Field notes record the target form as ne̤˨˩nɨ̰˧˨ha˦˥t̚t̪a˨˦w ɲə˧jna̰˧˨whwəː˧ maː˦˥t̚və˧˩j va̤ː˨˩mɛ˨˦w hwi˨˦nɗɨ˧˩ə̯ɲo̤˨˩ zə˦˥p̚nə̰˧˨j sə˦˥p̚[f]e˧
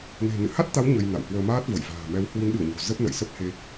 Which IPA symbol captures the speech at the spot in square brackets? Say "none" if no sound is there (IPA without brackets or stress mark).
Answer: h